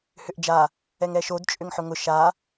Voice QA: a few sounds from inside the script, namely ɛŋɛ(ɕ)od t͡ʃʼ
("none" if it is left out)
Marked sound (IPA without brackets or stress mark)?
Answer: ʃ